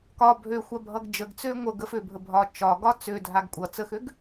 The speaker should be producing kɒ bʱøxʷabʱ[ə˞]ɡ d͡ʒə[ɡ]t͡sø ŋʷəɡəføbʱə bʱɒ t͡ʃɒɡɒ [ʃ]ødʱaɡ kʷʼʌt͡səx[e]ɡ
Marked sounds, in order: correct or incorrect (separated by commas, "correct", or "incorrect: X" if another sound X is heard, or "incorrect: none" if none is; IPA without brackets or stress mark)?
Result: incorrect: ʌ, correct, incorrect: t͡s, incorrect: ø